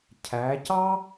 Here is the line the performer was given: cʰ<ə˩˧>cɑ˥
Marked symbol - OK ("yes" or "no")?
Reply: no